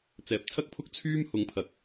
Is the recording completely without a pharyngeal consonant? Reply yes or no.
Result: yes